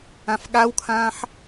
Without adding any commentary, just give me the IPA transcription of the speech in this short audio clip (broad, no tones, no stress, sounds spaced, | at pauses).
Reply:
ã f ɠ a w kʰ ãː ħ